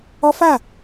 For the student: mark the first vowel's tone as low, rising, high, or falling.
high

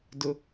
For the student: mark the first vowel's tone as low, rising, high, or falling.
low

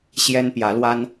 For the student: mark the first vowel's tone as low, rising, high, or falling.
high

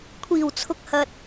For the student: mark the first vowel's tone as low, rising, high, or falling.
low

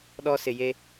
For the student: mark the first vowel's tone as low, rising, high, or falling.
high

